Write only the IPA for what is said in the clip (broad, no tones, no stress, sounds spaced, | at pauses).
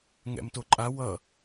ŋ ɛ̰ m t o ǃʼ a w ʌ